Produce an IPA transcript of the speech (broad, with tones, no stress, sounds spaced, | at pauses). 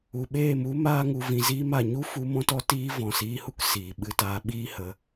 u˨ ɓ eː˦˨ m u˦ m aː˦ ŋ u˧ v ĩ˧ z iː˦ m a˨ ɲ u˦ f u˧ m ɔ̃˧ t ɔ˧ t iː˧ v ɔ̃˨ s iː˧ h u˦ k s iː˨ ɓ ɨ˧ t aː˧ ɓ iː˦ h ə˧